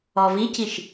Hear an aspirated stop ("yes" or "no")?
no